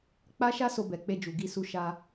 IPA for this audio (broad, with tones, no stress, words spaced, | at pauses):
k͡pa˦ʃa˦ so˧bɛ˨ k͡pe˧d͡ʒu˨ ɡi˧su˧ʃa˧